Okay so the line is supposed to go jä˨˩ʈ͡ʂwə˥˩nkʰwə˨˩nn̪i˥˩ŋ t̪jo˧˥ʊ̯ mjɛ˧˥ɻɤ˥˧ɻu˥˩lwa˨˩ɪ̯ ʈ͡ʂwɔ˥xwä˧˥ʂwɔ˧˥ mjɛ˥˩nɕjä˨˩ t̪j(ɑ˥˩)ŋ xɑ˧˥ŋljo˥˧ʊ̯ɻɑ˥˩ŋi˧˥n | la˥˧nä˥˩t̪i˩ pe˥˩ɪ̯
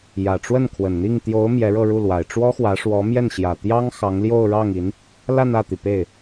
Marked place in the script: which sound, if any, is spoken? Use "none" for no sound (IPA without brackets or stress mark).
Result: ɑ˥